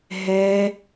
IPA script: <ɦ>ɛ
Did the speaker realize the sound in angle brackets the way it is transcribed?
yes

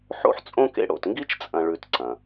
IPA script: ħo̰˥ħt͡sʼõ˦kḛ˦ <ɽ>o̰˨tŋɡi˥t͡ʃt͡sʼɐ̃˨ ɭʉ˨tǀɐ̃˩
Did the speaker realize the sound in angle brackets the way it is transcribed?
yes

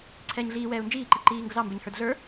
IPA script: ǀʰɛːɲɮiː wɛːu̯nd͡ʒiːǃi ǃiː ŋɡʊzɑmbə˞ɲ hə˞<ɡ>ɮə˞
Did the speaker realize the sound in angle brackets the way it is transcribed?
no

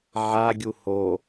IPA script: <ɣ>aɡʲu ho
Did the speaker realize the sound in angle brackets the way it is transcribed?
no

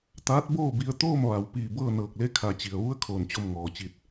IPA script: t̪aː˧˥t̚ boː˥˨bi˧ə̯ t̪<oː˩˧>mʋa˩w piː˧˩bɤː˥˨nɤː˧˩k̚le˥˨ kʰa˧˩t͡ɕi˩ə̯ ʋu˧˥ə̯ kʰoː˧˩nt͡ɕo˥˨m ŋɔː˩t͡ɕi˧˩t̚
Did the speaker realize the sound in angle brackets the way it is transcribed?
no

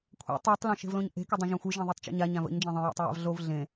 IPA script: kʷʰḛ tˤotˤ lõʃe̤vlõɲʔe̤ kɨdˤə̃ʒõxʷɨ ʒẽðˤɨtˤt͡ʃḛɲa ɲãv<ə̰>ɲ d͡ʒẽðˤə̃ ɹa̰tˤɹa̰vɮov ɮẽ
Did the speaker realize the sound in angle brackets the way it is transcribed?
yes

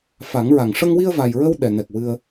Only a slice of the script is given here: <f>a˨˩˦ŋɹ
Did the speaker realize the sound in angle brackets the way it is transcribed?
yes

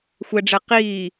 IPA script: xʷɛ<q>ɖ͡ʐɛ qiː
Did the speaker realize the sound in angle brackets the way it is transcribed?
no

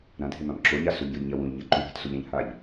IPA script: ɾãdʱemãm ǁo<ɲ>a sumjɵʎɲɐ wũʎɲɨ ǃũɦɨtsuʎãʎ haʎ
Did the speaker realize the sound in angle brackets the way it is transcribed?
yes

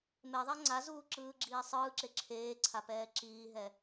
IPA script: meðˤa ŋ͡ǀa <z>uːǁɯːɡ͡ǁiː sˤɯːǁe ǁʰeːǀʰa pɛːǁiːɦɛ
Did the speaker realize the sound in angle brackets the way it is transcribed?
yes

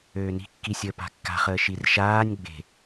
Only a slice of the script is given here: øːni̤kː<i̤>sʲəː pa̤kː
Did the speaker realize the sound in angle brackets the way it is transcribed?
no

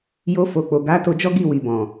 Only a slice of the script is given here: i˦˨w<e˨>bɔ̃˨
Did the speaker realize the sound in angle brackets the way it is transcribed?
no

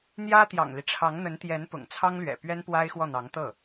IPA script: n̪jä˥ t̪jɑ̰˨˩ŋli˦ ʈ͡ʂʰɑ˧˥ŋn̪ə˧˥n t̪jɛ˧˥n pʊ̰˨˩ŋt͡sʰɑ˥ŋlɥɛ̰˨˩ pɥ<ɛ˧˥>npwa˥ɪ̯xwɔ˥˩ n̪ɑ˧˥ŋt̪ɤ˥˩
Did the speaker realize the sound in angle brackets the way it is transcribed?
no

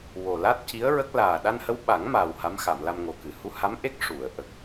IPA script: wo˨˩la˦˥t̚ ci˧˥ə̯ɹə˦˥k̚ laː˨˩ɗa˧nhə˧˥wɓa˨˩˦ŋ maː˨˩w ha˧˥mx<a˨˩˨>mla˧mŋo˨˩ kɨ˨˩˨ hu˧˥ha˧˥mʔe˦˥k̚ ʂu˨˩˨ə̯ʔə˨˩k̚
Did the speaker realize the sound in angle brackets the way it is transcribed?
yes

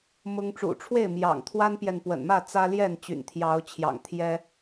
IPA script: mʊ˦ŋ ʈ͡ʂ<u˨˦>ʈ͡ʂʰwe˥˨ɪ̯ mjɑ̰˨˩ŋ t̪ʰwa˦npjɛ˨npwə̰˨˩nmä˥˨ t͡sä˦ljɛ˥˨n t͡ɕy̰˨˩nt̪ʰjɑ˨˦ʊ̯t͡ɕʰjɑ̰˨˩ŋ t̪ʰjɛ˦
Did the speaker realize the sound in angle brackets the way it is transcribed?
no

